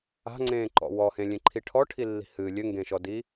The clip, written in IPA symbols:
a̤ ŋ͡ǀ ẽː ǃ ɔ̰ w ɔ h ẽ lʲ ẽ ǃʰ i ʈʰ ɔ ʈʰ i lː i̤ h ɨ lʲ ɘ ŋ ɡ ẽ ʃ ɔ d i

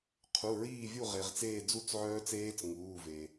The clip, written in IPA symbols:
qʰ u˩˧˩ ɹ iː˥˨ vʲ u˥˨ ʁ e˩ ʁ t͡s eː˥˨ d͡z u˥˨ t͡s ʕ œː˦˥ t͡s eː˦˥ t͡s ŋ uː˩˧˩ v e˩

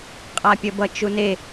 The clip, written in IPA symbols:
qʼ a pʲ ʌ b ʌ t͡ʃ u n e

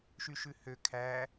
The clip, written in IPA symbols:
ʃ y ʃ ʉ h ø kʰ æ

